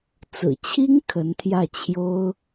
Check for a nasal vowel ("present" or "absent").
absent